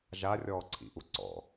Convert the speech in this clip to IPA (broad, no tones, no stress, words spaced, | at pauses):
ʒarʲɔːǀʰḭʔu ǀɔ̰